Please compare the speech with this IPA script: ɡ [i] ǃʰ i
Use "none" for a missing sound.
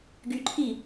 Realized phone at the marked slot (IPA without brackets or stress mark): y